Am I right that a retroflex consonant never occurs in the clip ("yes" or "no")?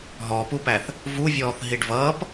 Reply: no